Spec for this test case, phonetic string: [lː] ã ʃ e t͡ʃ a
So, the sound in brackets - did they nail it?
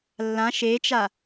yes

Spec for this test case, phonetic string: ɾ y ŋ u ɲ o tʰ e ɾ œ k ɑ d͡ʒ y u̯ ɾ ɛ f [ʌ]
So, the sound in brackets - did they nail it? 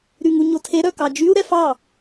no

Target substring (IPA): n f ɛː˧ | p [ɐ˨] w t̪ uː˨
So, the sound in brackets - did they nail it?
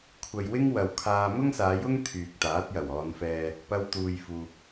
no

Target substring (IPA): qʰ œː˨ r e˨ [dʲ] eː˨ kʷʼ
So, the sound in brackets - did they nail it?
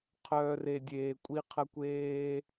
yes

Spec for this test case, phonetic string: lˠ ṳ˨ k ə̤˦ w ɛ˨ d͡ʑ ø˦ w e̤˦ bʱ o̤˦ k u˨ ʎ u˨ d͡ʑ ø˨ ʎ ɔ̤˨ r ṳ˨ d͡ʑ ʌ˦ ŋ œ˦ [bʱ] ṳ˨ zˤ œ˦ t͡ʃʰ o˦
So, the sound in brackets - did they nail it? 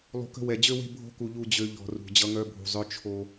yes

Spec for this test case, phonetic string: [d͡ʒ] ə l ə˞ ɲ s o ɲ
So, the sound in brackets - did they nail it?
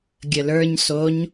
no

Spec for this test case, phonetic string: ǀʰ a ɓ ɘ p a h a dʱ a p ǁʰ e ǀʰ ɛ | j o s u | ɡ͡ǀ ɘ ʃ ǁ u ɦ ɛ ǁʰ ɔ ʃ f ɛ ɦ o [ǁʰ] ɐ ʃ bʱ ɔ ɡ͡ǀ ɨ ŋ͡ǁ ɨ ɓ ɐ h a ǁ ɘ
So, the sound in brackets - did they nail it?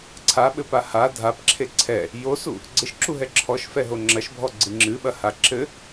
no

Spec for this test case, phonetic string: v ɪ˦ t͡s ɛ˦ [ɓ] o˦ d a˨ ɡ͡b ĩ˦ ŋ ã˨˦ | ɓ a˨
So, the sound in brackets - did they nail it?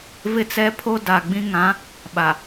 no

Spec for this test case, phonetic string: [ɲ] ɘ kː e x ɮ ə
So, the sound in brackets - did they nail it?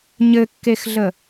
yes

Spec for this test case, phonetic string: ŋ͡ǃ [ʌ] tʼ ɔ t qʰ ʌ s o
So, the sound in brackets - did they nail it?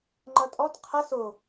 yes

